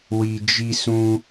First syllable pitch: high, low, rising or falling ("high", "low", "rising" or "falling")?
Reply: low